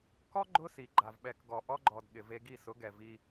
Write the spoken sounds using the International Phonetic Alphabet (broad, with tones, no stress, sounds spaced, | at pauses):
k ɔ˦ ɡ͡ǃ ʊ˦ s i˨ ɡ͡ǃ a˨ v ɓ ɛ˨ k ɡ ɔ˨ ʔ ɔ˧ ɡ͡ǃ ɔ˨ d ɠ ɪ˨ v e˧ ɡ i˦˨ s ʊ˨˦ ɡ ɛ˨ v i˧